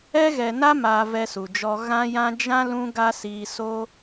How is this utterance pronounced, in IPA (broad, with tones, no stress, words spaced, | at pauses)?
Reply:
ɛ˦ɣɛ˧na˦ ma˧ vɛ˧su˨d͡ʒɔ˧ ɣã˦jã˦ d͡ʒã˦ lũ˦ɡa˦siː˧ so˦